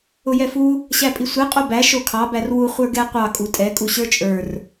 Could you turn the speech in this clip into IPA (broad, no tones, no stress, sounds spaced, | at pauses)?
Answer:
ʊ j ɛ f u | ɕ æ pʼ i sʷ e qʼ o b æ ʃ o kʰ ɑ b æ r w u χʷ ə˞ ɡ ɛ qʷ ɑ kʼ u tʼ ɛ kʼ u ɕ ə˞ t͡ʃʼ ə˞ r